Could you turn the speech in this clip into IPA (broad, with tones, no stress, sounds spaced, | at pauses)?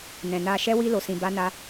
n ɛ̃˨ n a˧ ʃ ɛ˦ w i˦ l o˧ s ĩ˧ b a˦ n a˦